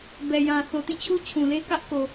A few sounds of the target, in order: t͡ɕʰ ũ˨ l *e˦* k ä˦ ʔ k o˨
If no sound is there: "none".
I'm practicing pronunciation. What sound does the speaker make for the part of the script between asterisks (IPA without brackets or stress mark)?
e˦